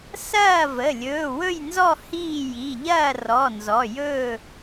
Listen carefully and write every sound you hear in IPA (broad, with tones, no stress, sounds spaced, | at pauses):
s ɐː˥˨ v ə˩˧˩ lʲ ɵː˩˧˩ w ɵ˥˨ j n z ɔ˥˨ h iː˥˨ j i˩˧˩ ʎ ɐː˥˨ r ɔ˩˧˩ n z ɔ˩˧˩ j ɵː˥˨